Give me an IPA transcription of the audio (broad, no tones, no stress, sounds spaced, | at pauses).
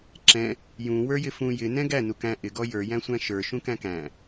ǁ ɛ̃ | j ũ w ə˞ j ɪ f ũ j ɪ n ɛ̃ ɡ æ n u k æ̃ ʔ ɪ ɡ ɔ j ə˞ j æ̃ sʷ æ̃ ʃ ə˞ ʃ ũ k æ̃ k æ̃